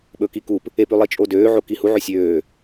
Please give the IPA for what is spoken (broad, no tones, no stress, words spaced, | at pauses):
ɓɵkikup | ep ʉlˠit͡ʃʼodøː ʕokihu ʕøsʲøː